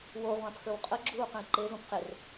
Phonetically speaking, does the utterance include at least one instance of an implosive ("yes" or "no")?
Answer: no